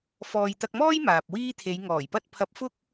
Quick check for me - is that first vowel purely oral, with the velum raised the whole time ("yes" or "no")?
yes